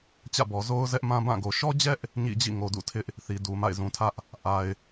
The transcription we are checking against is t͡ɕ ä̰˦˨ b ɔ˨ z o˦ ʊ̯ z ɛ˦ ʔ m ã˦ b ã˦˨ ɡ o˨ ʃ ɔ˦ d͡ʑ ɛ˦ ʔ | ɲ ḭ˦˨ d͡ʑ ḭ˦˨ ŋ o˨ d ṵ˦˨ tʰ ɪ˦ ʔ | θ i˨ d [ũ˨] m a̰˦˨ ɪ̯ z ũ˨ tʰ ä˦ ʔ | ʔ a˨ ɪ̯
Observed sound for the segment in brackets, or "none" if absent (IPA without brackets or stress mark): u˨